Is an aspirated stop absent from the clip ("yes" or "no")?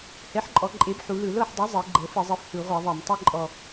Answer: yes